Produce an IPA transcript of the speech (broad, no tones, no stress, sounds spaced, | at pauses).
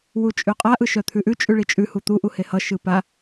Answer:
w u t͡ʃʼ ʉ qʼ a ʔ ɯ ʃ œ t̪ʰ ʉ ʔ ʉ t͡ʃʼ ʉ ɭ i t͡ʃʼ ʉ h u t̪ u ʔ u h e h ʌ ʃ ɯ p a